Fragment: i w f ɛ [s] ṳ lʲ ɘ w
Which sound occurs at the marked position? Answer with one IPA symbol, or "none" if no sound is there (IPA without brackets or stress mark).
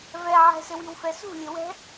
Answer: s